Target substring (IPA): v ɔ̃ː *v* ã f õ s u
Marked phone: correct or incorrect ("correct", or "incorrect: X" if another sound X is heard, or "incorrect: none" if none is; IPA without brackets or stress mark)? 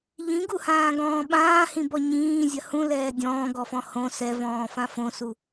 incorrect: f